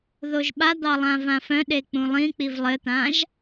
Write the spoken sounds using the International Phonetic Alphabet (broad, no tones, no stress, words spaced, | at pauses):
ðoʒɓad̪ɑ lˠãvãfœ̃ɗe k͡pũlˠĩk͡piv lˠɘt̪ãʒ